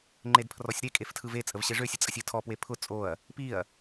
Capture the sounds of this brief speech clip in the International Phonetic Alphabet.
ŋ͡ǃedpʰrɔsʲɾe kʼeftʰɯve t͡sʼəvɕeʐø sʲət͡sʼəsʲɯtʰɔ pwepʰʊ t͡sʼoɐ̯ | piɐ̯

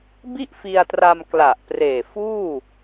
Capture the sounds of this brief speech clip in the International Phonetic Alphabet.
bi˥˩ʔfi˧a̯tra˧m kla˨˩ʔpreː˨˩ fuː˥˩

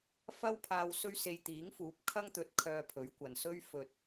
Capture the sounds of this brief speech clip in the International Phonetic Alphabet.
fɐ˧wpʰaː˨w sɵ˧ɥse˨j t̪iː˨˥ŋfuː˨˥p̚kʰɐ˥ŋt̪ɵ˨˥t̚ kʰœː˧pʰɵ˨˥ɥkʷɐ˨nsɵ˥ɥ fɵ˨t̚

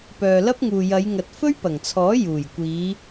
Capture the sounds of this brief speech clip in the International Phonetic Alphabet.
pœː˨lɐ˥p̚ŋuː˨ jɐ˨˧jŋɐ˨t̚ fɵ˥ɥpɐ˨˩ŋt͡sʰɔː˨˥ juː˨˩jkʷiː˨˧

